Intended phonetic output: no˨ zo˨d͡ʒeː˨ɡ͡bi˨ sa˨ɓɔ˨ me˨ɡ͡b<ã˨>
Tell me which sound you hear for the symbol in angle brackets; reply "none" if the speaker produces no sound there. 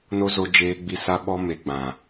ã˨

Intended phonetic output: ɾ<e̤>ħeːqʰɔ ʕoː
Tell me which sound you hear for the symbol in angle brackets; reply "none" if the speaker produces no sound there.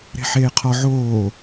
e̤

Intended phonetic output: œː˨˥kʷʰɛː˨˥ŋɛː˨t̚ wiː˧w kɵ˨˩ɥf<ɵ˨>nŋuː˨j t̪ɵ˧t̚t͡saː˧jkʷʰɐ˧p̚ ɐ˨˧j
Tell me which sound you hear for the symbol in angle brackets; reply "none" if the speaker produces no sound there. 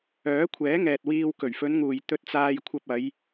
ɵ˨˧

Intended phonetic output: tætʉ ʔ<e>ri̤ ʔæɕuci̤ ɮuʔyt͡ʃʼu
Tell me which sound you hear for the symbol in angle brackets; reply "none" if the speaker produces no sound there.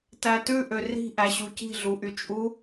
ø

